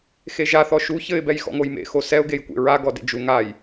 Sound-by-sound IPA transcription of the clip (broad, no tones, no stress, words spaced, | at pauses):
xeʒa θɔʃu çɘɪ̯ bɛjxɔ̰ŋojmḛ xosɛʊ̯ ɡejkʷḛɹa ɡɔdḛd͡ʒu ŋaj